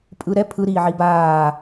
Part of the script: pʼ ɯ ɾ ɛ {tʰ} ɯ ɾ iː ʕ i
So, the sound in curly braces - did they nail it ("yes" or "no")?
no